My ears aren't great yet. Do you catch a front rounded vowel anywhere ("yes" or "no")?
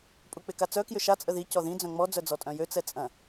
yes